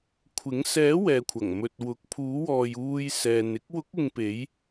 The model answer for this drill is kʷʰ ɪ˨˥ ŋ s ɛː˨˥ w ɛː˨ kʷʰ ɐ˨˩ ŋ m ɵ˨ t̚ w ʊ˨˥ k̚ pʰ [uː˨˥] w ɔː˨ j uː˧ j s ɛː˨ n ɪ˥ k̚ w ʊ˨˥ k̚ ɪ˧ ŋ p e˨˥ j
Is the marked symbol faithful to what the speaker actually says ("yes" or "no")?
yes